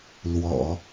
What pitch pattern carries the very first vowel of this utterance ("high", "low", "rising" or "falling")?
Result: low